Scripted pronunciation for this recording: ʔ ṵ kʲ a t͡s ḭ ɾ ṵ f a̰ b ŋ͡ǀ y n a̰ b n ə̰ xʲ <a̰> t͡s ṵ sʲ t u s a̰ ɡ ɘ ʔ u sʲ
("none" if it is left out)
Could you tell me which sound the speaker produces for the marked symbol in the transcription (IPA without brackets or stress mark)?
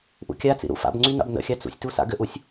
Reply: a